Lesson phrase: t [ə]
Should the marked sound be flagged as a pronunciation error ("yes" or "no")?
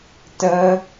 no